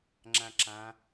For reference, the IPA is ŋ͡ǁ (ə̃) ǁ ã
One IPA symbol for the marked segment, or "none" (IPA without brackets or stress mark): ã